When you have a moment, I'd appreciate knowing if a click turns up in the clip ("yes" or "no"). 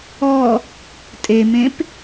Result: no